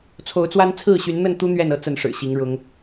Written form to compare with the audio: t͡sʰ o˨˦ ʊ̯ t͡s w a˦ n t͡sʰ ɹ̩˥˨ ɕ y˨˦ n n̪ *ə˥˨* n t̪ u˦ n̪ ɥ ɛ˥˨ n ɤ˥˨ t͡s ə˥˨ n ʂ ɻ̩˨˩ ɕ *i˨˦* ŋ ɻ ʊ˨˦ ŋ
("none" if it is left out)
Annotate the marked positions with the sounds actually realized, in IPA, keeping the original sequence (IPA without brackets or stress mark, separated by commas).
ə˥˨, i˨˦